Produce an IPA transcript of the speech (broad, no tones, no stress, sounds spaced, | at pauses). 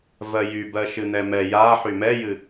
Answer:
v ɜ j y b ɜ ʃ ɨ n̪ ɛ m ɛ j a ħ y m ɛ j ɨ